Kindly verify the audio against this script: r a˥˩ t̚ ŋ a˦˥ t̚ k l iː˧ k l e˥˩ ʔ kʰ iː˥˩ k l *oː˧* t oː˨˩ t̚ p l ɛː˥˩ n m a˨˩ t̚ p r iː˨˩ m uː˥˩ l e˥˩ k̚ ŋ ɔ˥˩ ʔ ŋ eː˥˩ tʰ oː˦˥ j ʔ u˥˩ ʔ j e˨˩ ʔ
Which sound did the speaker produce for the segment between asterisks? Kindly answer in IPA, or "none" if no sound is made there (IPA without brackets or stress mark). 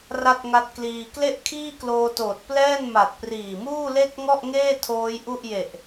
oː˧